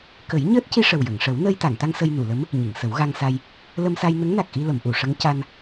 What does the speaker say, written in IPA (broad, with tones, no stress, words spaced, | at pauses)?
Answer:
kə˨˩˦jɲəː˦˥t̚ci˧ ʂə˨˩wjə˨˩˨ŋʂə˨˩˦w nəː˧jt̪a˨˩˨ŋt̪a˧ŋ sə˧jnu˨˩˨lə˧˥m | ɲi˨˩˨ŋsə˨˩˦wɣa˧ŋsa˧j | lə˧msa˧jnə˧˥ŋna˨˩k̚ ʔi˧lə˨˩˨mʔu˨˩˨ ʂə˧˥ŋca˧n